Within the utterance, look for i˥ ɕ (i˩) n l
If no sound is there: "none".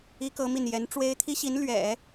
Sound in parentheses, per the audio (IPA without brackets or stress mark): i˧˥